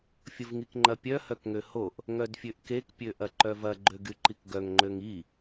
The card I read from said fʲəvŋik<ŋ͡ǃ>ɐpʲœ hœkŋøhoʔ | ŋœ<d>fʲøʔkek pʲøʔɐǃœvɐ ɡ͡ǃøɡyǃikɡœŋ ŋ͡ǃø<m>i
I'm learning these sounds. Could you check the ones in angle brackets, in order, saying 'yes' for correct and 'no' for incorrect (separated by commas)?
yes, yes, no